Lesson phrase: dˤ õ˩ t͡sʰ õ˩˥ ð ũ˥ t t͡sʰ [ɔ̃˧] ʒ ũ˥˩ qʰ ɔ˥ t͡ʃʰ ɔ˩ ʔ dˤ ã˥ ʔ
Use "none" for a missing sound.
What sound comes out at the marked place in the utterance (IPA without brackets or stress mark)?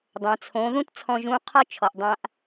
ɔ̃˧